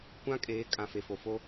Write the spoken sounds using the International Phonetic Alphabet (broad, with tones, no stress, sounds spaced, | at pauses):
kʷ ã˦ kʼ eː˨˦ kʼ ã˨ f e˨ f o˨ f o˦